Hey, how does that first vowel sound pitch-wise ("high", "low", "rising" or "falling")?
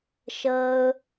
high